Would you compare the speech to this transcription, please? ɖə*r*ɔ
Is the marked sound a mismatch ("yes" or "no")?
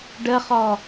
yes